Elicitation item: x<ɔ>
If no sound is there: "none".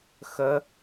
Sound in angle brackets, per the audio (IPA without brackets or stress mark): ə